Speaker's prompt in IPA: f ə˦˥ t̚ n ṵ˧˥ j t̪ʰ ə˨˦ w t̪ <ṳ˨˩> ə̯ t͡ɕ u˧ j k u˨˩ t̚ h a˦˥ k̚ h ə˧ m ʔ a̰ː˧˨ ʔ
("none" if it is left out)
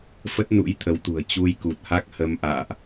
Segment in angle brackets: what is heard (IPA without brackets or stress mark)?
ṳ˨˩